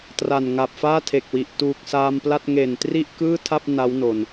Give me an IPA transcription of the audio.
t r a˨˩ n ŋ a˨˩ p̚ f aː˥˩ tʰ e˨˩ k̚ w i˨˩ ʔ t uː˨˩ k̚ s aː˧ m p l a˥˩ t̚ ŋ e˨˩ n t r i˥˩ ʔ k ɯː˥˩ tʰ a˥˩ p̚ n a˦˥ w n o˨˩ n

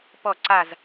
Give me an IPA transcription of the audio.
p ɔ˥˨ ǀ a˥˨ z

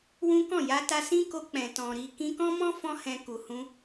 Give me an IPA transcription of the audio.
w ũ˦ k ɔ̃˦˨ j a˧ t a˧ s ĩ˦ k o˧ k͡p ɛ̃˨ t ɔ̃˨ ɾ i˧ k ĩ˧ k ɔ̃˦ m ɔ̃˦ f ɔ̃˦ h ɛ̃˧ k u˨ h ũ˧

